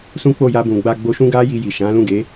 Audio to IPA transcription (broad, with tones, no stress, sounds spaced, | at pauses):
s ũ˦ k͡p o˦˨ j a˧ b ũ˨ ɡ͡b a˧ ɡ͡b o˧ ʃ ũ˦ ɡ a˦ j i˧ j i˨ ʃ ã˨˦ l ũ˦˨ ɡ e˨˦